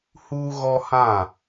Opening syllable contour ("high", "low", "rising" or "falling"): high